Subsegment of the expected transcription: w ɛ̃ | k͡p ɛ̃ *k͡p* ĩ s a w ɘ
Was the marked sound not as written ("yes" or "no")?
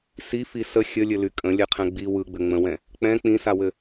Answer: no